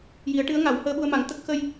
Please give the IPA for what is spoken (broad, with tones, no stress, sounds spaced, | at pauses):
j i˨˩˦ ə̯ ʈ ɨ˧˥ ə̯ ŋ a˨˩˦ w h əː˧ ɓ u˧ ə̯ m a˨˩˦ ŋ t̪ ə˦˥ k̚ x ə˧ j